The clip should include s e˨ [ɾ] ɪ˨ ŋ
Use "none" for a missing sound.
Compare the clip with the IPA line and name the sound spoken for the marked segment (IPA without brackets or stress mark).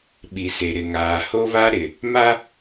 ɾ